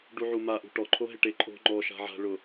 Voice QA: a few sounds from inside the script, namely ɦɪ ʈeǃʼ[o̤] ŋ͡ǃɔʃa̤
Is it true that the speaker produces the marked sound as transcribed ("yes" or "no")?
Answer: yes